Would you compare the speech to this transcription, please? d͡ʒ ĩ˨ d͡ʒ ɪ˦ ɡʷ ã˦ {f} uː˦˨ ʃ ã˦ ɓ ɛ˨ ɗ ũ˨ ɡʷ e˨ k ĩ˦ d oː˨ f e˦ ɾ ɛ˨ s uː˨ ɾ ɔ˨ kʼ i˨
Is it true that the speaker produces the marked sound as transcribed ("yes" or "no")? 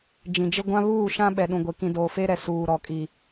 no